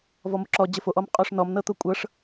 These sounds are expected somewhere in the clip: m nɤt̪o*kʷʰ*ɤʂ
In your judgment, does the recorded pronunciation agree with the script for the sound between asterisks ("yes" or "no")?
no